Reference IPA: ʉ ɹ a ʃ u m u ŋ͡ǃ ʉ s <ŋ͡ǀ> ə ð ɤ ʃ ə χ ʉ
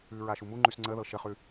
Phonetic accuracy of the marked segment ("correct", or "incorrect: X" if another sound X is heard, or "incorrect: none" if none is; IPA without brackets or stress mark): correct